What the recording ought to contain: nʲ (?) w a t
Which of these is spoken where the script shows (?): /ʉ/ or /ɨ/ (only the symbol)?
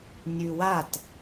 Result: ʉ